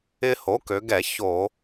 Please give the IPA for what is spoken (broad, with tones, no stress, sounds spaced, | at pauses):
ɪ˦ h o˩˥ k ø˩˧ ɡ ɛ˧˩˧ ç o˧˩˧